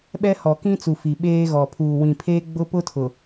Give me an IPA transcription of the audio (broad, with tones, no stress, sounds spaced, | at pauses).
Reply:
ɓ ɛ˦ h ɔ˨ k ĩ˦ t͡s u˨ f i˨ ɓ eː˦ ɣ ɔ˨ pʰ uː˨ w ĩ˨ pʰ eː˦ ɡ͡b ʊ˦ p ʊ˦ tʰ ʊ˨